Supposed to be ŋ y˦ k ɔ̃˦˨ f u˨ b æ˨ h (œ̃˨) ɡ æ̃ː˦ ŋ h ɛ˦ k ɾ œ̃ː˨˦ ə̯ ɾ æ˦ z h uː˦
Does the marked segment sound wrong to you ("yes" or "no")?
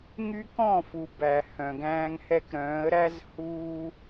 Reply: no